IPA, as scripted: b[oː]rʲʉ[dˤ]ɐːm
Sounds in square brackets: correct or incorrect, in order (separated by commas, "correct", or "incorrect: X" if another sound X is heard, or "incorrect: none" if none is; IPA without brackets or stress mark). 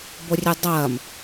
incorrect: o, correct